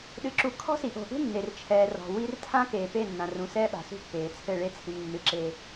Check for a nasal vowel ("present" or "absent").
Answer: present